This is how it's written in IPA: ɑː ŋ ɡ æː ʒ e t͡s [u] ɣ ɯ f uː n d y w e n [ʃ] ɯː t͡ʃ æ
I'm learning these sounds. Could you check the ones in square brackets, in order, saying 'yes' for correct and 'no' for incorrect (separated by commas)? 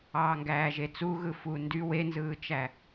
yes, no